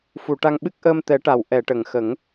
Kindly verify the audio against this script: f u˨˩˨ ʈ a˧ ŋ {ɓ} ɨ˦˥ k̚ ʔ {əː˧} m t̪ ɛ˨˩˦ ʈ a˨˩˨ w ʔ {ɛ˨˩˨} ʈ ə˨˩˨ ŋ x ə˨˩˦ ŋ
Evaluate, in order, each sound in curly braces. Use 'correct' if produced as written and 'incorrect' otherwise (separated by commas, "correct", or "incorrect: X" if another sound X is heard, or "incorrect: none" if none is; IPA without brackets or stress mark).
correct, correct, correct